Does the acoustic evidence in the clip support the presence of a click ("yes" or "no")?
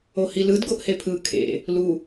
no